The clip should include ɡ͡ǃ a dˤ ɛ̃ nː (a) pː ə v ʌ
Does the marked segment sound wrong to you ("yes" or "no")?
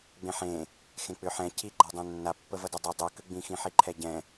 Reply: no